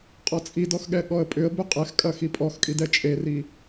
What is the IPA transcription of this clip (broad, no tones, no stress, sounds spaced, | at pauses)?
qʼ ɔ t͡sʼ i d ɔ x ɠ ɛ ɠ ɔ ə̯ pʼ ʏ ə̯ b ʏ qʼ ɛ x kʼ ɐ x i pʼ ɔ x kʼ i d ɛ t͡ʃʼ e r i